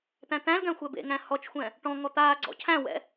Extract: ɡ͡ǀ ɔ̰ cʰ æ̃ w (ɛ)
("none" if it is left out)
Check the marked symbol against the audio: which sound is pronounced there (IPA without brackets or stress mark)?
ɛ̰